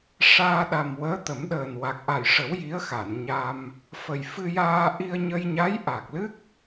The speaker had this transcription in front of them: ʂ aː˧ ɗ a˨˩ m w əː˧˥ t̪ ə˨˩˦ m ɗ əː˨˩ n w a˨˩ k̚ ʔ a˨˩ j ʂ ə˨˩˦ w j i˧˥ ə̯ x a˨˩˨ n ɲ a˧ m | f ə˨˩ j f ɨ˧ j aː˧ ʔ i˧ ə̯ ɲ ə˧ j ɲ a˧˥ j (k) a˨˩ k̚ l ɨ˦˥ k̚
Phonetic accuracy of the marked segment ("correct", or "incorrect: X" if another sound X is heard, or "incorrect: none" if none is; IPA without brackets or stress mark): incorrect: ʔ